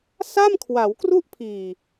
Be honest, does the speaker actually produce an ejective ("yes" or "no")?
no